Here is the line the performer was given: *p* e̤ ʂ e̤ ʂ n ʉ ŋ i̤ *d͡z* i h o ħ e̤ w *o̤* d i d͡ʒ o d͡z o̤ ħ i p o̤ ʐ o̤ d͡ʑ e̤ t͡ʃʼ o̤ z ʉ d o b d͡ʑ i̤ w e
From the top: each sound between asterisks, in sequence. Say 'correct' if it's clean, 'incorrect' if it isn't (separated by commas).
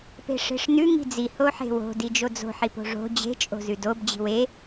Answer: correct, correct, correct